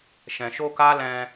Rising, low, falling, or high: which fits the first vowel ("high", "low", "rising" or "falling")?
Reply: low